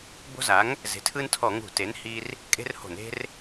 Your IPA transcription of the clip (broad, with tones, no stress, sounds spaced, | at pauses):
b o̤˦ z a˩˥ ŋ | z e̤˩˥ tʰ ɯ˦ n tʰ ɔ˧˩˧ ŋ ṳ˧˩˧ t e˩˥ n h i˦ r | kʼ e̤˦ r h o̤˧˩˧ n e̤˦ r